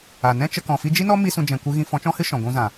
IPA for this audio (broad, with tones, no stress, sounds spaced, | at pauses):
a˨ n ɛ̃˦ t͡ʃ ə˧ k ɔ̃˨ f i˧ d͡ʒ i˦ n ɔ˦ m i˦ s ũ˧ d͡ʒ ɛ̃˨ kʷ ɨ˧ ɣ ĩ˧ f ɔ̃˨˦ t͡ʃ ɔ̃˦ h ɨ˦ ʃ ɔ̃˨ ɡʷ ũ˧ z ã˨